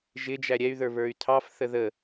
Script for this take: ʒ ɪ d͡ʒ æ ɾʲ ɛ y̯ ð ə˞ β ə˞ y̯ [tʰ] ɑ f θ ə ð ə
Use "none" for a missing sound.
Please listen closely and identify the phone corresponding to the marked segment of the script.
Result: tʰ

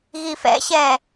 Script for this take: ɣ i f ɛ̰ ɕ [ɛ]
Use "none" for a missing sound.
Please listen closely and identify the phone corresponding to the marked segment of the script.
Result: ɛ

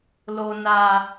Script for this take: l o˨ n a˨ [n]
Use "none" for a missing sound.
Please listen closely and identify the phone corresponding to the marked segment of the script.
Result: none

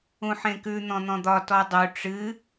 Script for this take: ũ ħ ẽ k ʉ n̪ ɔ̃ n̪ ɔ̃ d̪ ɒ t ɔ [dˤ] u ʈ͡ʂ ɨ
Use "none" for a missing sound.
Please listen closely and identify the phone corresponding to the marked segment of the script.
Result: dˤ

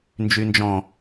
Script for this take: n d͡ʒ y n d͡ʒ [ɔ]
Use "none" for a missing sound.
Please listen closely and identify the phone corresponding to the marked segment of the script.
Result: ɔ̃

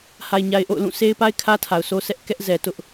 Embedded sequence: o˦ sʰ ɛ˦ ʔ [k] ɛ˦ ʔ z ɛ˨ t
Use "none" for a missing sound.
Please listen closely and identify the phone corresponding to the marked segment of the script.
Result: k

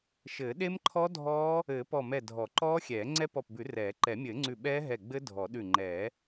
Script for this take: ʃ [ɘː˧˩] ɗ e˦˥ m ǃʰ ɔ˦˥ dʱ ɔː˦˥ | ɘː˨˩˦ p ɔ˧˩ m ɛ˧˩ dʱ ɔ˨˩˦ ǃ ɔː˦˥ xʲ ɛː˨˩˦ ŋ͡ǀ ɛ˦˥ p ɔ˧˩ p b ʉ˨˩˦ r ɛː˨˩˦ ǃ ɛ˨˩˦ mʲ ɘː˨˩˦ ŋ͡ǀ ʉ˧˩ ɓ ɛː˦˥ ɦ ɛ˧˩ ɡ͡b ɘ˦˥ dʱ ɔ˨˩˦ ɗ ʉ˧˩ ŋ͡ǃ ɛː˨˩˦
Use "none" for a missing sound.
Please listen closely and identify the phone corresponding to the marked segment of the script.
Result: ɘː˨˩˦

